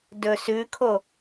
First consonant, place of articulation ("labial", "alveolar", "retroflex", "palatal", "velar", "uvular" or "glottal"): alveolar